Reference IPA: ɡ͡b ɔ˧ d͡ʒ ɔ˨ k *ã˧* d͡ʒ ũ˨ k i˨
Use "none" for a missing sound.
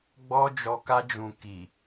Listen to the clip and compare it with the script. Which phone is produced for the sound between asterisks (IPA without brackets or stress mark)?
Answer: a˧